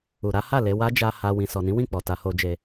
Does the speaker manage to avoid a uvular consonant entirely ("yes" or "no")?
yes